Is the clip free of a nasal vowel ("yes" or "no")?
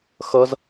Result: yes